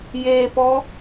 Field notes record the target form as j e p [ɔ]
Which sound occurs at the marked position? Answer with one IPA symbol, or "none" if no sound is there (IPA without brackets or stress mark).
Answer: ɔ